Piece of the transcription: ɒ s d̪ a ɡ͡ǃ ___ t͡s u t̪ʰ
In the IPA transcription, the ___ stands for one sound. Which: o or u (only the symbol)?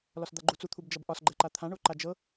u